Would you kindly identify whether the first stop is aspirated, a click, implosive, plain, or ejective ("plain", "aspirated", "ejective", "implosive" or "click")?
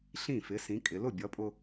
ejective